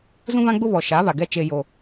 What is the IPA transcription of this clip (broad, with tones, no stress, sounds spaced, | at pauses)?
z ũ˦ β ã˦ ɡ͡b ʊ˦ β ɔ˨ ʃ a˨˦ β a˨ ɡ ɛ˦ t͡ʃ e˦ j o˦